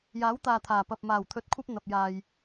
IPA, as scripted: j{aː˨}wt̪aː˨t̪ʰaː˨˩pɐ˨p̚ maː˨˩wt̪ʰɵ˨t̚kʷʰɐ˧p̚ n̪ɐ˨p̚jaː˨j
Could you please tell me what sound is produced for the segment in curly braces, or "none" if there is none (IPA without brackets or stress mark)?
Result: aː˨˥